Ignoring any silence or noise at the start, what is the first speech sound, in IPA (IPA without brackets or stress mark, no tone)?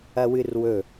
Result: ɐ